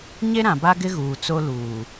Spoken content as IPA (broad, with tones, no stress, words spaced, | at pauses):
ɲe˦ɾã˨ba˦ɡɪ˦ ɣuː˨ t͡so˦luː˨